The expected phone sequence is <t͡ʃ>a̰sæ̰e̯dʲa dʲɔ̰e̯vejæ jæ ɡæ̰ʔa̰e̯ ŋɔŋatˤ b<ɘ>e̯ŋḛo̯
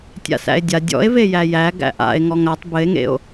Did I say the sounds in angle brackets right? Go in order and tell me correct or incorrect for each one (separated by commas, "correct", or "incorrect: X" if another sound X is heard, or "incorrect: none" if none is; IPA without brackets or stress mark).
incorrect: tʲ, correct